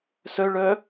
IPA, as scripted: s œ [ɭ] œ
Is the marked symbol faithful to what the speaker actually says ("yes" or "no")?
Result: yes